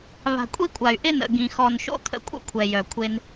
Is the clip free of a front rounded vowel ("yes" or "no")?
no